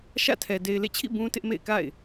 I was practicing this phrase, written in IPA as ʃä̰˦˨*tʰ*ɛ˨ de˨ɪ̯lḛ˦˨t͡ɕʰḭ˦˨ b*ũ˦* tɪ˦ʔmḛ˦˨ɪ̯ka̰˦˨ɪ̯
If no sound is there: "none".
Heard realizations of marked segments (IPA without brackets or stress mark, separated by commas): tʰ, ũ˦